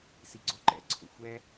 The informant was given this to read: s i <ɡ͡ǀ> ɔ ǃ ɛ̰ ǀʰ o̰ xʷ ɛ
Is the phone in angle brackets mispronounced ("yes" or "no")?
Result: no